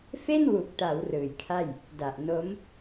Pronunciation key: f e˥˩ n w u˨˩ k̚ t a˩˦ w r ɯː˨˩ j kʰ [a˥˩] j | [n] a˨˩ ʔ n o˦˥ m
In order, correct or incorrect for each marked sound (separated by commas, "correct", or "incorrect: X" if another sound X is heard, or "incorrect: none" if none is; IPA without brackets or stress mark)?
correct, incorrect: d